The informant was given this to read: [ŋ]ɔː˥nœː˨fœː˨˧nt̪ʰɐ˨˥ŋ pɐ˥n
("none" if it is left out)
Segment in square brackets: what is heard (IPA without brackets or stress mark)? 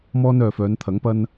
m